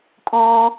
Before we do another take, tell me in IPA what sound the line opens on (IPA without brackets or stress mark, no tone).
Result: kʼ